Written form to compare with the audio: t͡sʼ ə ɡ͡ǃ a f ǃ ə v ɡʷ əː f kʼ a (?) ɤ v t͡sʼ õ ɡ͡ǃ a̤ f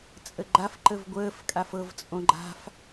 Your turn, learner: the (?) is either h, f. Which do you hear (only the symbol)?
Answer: f